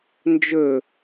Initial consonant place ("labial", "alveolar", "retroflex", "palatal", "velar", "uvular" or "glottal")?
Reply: alveolar